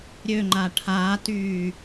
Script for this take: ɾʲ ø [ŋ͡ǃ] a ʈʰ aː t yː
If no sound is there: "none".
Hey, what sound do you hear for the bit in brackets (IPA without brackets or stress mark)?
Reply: ŋ͡ǃ